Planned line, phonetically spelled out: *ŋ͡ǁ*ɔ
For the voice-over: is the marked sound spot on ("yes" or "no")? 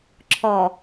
no